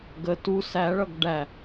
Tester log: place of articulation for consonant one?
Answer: velar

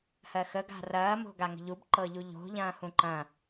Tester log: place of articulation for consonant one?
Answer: glottal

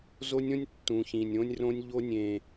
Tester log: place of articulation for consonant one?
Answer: alveolar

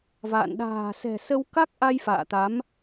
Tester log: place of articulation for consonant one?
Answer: labial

